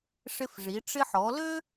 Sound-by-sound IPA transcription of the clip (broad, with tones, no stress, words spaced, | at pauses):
ʂɪ˧fʐi˩˧ ʈ͡ʂɪ˧ħɔ˩˧lø˥